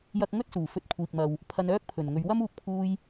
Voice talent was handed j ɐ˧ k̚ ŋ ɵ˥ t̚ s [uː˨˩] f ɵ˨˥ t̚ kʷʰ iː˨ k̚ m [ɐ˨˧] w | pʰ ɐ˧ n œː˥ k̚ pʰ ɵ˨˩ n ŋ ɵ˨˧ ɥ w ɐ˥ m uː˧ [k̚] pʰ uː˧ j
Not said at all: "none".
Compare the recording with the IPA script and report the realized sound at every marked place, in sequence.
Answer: uː˨˩, ɐ˨, k̚

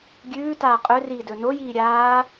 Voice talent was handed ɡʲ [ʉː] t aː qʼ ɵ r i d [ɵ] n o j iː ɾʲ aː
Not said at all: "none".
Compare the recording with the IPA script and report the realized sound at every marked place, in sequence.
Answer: ʉː, ɵ

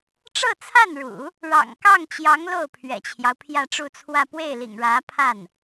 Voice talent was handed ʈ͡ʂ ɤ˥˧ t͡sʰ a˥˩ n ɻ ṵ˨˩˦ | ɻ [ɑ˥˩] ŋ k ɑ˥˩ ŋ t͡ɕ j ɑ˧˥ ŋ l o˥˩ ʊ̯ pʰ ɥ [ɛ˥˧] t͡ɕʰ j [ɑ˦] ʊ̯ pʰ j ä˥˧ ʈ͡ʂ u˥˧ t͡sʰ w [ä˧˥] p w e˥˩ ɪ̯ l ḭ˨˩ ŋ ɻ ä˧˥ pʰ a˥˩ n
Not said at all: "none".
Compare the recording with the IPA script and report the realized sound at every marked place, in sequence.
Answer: ɑ̰˨˩, ɛ̰˨˩, ɑ˦, ä˥˧

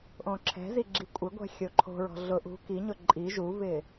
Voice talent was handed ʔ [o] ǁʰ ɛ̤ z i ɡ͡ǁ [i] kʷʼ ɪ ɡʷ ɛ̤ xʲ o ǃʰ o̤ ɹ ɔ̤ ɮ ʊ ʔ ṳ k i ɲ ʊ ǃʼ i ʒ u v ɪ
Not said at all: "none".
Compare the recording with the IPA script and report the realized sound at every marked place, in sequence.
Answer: õ, i

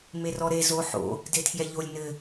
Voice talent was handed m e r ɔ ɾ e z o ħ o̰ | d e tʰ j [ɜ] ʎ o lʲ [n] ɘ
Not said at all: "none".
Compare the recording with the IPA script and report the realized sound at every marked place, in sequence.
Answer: ɛ, n

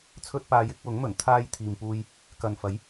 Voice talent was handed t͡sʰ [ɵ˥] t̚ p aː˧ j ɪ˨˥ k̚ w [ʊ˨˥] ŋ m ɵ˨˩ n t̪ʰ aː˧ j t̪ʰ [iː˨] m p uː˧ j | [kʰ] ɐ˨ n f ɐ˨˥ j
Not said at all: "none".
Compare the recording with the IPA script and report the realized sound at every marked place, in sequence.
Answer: ɵ˥, ʊ˨˥, iː˨, k

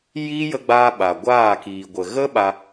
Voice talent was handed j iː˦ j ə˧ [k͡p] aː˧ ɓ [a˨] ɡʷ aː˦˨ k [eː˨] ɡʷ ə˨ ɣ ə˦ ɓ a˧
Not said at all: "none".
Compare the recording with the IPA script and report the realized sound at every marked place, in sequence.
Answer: ɡ͡b, a˨, iː˨

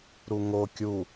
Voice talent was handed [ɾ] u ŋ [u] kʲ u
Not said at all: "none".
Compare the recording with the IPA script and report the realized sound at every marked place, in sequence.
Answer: ɾ, o

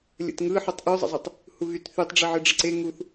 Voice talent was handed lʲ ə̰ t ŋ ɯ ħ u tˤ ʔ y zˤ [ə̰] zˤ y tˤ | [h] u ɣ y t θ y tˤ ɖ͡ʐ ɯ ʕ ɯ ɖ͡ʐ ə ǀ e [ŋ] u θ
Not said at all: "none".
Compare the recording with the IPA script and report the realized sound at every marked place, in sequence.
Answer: ə̰, h, ŋ

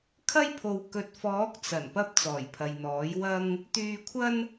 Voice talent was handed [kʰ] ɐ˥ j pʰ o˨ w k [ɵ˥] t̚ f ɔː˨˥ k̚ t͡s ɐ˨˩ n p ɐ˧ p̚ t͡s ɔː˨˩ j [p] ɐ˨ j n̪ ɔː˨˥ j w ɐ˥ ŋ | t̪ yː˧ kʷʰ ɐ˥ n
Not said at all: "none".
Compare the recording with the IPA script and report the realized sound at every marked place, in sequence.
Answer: kʰ, ɵ˨, pʰ

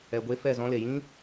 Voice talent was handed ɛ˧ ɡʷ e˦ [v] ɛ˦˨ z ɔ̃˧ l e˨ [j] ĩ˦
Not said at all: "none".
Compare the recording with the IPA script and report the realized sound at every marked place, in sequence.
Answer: f, j

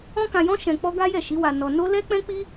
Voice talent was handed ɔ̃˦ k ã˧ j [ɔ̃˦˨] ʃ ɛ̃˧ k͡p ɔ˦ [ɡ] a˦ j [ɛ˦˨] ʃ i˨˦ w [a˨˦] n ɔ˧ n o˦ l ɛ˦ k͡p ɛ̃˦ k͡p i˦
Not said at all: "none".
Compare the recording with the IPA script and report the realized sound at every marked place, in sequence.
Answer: ɔ̃˦, ɡ, ɛ˦˨, a˧

